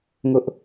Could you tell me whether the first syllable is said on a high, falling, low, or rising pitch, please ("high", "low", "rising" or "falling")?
high